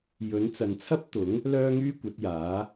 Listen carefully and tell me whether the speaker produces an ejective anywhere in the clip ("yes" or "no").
no